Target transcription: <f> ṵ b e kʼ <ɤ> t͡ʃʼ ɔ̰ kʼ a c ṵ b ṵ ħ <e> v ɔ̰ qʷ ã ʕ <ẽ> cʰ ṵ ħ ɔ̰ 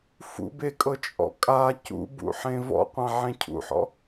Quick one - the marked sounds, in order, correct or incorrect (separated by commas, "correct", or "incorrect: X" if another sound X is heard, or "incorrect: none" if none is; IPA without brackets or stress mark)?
correct, correct, incorrect: ẽ, correct